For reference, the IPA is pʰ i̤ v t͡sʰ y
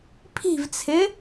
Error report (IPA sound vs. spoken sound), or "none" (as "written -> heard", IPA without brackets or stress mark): y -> ɪ